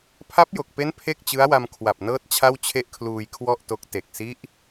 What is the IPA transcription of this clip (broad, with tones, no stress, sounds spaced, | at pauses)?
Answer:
pʰ a˦˥ p̚ j o˨˩ k̚ p e˦˥ n pʰ e˥˩ k̚ t͡ɕ ɯ˦˥ a̯ w a˧ m kʰ w a˨˩ p̚ n ɤː˦˥ t̚ t͡ɕʰ a˥˩ w t͡ɕʰ e˥˩ ʔ kʰ l uː˧ j kʰ w ɔ˥˩ ʔ t o˦˥ k̚ t e˨˩ k̚ s i˦˥ ʔ